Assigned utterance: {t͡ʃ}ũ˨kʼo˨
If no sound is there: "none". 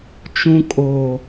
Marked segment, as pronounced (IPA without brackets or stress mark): t͡ʃ